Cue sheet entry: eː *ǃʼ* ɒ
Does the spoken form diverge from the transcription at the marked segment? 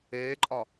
no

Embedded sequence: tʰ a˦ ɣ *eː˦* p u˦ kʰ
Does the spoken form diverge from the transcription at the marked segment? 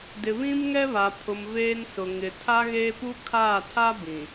no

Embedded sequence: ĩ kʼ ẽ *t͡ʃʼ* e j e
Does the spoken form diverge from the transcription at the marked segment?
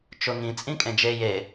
yes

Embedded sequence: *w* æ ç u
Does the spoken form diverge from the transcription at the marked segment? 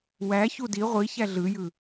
no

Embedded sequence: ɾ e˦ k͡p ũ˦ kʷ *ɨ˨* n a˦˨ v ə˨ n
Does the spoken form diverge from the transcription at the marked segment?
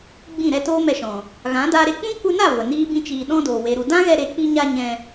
yes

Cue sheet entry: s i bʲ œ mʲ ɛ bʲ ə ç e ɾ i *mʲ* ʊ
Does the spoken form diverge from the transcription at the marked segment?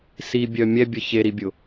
yes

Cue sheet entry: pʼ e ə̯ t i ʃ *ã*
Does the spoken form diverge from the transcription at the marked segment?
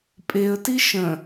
yes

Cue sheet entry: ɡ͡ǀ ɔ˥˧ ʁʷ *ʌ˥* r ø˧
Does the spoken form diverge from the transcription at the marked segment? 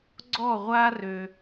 yes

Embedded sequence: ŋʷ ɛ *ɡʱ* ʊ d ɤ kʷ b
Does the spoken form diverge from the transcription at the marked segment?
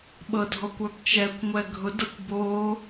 no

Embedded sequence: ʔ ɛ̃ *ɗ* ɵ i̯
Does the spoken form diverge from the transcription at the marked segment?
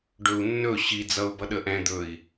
yes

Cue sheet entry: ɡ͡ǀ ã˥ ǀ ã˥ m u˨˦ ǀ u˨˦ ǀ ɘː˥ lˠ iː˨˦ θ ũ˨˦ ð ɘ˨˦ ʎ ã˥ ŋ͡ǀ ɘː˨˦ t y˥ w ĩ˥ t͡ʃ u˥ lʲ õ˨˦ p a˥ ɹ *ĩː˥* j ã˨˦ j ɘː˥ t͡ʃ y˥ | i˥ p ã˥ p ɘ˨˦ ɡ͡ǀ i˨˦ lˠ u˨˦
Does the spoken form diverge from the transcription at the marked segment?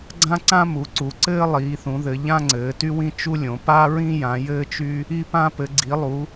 yes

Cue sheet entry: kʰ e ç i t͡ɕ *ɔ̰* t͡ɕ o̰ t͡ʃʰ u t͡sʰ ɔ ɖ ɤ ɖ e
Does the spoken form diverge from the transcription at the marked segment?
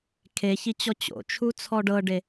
yes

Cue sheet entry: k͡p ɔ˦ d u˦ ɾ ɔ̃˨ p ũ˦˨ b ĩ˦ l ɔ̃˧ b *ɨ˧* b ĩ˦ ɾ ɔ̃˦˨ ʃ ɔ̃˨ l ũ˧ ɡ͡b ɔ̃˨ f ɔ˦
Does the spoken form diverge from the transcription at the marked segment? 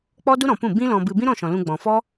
no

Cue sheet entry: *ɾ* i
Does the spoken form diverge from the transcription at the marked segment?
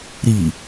no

